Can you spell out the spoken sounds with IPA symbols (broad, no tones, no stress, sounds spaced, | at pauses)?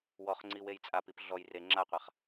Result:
w ɔ χ ŋ͡ǀ i w e j t͡sʼ a p i p ɮ ɔ j r e ŋ͡ǁ a qʷ a χ